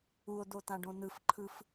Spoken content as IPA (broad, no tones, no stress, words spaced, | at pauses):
uo̯d̪ot̪ãɖõ n̪ɯfǃʰɯf